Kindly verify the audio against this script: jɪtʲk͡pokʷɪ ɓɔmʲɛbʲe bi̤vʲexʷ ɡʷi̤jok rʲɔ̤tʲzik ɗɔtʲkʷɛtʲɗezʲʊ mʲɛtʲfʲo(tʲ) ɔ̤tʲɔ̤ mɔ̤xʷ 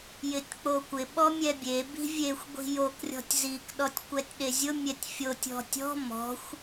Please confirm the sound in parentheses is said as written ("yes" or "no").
yes